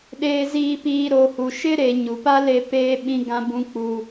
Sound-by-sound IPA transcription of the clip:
ɗeː˨ziː˨piː˨ ɾo˨hu˨ ʃɪ˦ɾe˨ ɲu˨pa˦ le˦peː˦ ɓĩ˦ɡã˦ bũ˦k͡puː˦

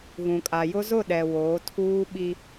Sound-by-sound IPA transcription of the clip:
ɣũ˨kʼa˨jʊ˦ zʊ˦˨ɗɛ˨ woː˨˦tʰuː˦ɓi˦

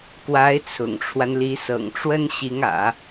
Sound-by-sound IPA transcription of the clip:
kwa˧˥ɪ̯t͡sʰʊ̰˨˩ŋʈ͡ʂʰwa˦nli˧˥ sɤ̰˨˩ŋʈ͡ʂwə˥nɕi˧˥ŋä̰˨˩˦

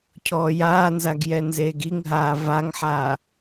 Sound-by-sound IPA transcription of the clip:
cʰɔːjaːnzaɡ jɛnzeːɡiŋɦaː vaŋħaː

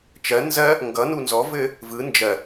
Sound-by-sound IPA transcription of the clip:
t͡ʃɜ nzɜ | ŋɡʌnu nzɔvɘ | vɯ nd͡ʒɜ

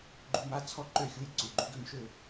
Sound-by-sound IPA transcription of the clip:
ɡ͡ǃu˧˥˧ma˧˥˧ t͡sʰɔ˥˨ ǃø˥˨xʲu˧˥˧j ǀu˩˧˩ ɡ͡ǃu˧˥˧ɡø˥˨mʃø˥˨

